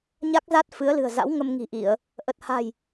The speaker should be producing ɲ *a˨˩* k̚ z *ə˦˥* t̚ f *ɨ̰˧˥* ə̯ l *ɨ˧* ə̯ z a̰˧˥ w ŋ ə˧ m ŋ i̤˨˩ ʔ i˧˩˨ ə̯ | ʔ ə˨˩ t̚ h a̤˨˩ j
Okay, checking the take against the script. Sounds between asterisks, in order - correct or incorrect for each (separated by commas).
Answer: incorrect, incorrect, incorrect, incorrect